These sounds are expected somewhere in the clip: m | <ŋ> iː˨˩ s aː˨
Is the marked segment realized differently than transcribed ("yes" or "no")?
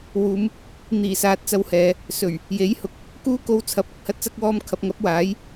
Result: yes